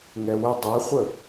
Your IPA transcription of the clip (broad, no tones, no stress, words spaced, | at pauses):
ŋɛwə dˤɛχʷə